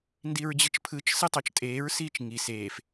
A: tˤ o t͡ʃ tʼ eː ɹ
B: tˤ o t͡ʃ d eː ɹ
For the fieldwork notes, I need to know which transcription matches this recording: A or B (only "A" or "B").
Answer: A